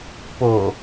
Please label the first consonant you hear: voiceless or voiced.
voiceless